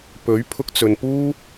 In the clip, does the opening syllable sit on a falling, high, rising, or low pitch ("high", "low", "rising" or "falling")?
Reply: rising